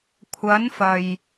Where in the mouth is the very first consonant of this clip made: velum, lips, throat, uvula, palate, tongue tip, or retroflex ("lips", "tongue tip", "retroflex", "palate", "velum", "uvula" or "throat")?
velum